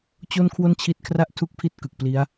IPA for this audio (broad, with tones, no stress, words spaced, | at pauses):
t͡ɕo˥˩nkʰwo˥˩nt͡ɕʰi˦˥t̚kʰra˥˩ʔ tʰu˥˩k̚pʰi˥˩t̚kɯ˨˩k̚pli˦˥a̯